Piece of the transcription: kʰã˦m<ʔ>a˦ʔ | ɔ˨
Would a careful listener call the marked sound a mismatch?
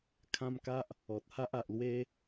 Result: yes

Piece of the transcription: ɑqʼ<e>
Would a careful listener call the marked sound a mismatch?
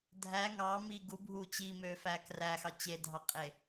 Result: no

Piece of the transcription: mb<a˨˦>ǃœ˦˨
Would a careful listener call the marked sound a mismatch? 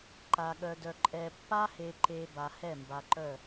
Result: yes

